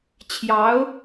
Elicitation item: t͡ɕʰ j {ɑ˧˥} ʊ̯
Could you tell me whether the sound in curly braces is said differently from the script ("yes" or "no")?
no